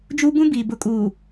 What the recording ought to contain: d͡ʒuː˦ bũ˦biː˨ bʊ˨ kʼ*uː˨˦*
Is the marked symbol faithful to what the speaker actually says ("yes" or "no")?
no